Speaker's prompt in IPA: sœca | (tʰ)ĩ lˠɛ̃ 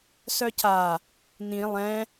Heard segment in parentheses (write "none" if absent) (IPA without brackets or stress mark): n̪